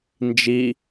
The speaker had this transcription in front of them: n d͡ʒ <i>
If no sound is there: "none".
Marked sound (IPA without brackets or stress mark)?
i